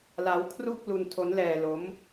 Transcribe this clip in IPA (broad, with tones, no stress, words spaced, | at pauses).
la˦˥wkʰru˥˩k̚ lu˧ntʰo˦˥nlɛː˧ lo˦˥m